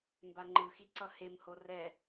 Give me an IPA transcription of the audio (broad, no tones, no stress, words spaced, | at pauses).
mbaŋ͡ǃɯxi ǀʌhemho rɛ